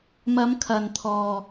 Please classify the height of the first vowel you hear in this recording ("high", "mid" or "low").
low